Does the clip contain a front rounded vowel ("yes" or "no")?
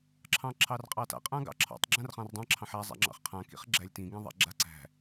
no